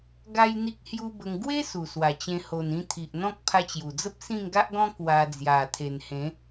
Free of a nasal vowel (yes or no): no